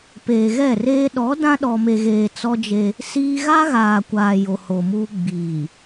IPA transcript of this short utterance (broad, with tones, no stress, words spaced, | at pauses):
peː˨ɣɛ˦˨reː˦ ɗɔ˨˦ dã˦ɗɔ˨me˨ɣeː˨ t͡sɔ˦d͡ʒe˦ | siː˦ ɣa˦ɣaː˨kʷaː˨ jo˨ho˨muː˦ ɡ͡biː˨